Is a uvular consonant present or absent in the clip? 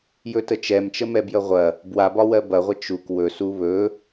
present